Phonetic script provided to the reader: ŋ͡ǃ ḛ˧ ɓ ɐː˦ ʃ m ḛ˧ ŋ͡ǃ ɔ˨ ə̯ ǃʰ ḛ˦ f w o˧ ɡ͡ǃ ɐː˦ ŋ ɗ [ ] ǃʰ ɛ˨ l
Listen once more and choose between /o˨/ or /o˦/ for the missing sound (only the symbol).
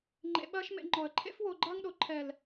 o˨